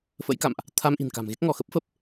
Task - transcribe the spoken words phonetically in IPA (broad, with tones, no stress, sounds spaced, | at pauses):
f ə̰˧˥ j k a̰˧˨ m ʔ | t̪ʰ a˧ m ʔ i̤˨˩ n k a̤˨˩ m ɣ e˦˥ k̚ ŋ ɔ˧˩ x ə˦˥ p̚ f ə˨˩ p̚